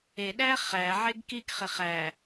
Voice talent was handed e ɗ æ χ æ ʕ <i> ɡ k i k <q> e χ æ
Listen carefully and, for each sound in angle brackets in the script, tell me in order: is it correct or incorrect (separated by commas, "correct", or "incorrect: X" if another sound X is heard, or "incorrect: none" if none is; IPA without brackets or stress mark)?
incorrect: e, incorrect: χ